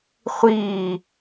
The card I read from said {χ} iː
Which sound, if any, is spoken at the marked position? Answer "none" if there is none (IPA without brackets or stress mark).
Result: χʷ